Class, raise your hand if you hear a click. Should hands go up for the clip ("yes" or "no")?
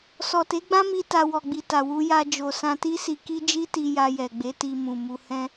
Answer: no